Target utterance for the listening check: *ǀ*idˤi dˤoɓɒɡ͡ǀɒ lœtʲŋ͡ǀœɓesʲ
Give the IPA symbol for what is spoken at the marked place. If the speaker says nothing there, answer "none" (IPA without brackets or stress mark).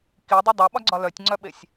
k